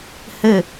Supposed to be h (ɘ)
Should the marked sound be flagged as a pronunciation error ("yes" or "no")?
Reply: no